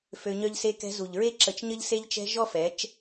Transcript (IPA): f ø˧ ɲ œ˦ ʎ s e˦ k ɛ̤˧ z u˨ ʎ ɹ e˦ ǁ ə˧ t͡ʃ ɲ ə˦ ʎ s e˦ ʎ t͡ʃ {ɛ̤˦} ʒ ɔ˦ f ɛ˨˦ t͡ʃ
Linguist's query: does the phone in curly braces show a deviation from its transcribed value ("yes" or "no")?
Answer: no